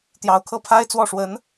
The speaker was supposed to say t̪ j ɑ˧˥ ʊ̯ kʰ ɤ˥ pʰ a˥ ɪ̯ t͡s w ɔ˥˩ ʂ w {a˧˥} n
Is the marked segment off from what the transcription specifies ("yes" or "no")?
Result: yes